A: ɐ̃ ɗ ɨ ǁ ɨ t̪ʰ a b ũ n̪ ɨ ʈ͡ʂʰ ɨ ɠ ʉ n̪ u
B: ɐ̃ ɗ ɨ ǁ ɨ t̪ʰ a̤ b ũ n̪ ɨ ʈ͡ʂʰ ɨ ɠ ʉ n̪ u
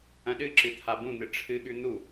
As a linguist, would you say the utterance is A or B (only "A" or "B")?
A